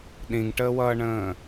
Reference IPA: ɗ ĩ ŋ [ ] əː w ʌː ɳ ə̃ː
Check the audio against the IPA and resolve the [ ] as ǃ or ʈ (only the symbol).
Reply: ʈ